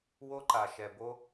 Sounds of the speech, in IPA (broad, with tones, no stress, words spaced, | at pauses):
wo˦ǃa˨ʃɛ˨bo˦